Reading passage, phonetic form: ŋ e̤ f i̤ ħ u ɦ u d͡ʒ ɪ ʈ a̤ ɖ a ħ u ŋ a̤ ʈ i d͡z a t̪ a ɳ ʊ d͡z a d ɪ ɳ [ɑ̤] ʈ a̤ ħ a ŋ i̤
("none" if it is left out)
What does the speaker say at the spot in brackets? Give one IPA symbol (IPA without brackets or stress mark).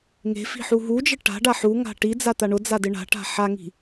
a̤